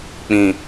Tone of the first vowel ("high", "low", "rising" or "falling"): low